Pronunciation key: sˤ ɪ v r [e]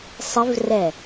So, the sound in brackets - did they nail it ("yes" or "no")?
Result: no